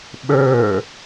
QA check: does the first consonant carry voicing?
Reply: yes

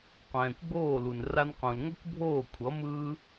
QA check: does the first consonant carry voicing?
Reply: no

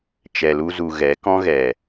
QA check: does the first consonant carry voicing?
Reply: no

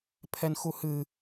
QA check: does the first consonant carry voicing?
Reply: no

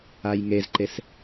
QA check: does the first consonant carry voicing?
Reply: yes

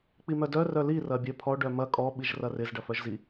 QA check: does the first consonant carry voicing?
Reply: no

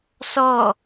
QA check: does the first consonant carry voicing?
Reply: no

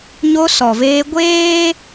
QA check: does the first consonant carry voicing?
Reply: yes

